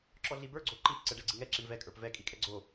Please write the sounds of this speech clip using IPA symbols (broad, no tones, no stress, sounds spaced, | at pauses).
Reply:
ǁ ɔ ɮ i b ə˞ ɡ͡ǀ o ǃ i p ǀ ɛ ɖ ɛ ɡ͡ǀ i ŋ ɛ ǁ i ɳ v ɛ kʼ ə˞ p v ɛ kʼ i kʼ ɛ ɡ͡ǀ o